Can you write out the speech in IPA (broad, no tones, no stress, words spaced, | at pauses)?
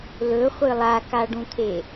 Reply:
lɵχʷɨ lˠakaɖũt̪ʰe